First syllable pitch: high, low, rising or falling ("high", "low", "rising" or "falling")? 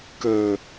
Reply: low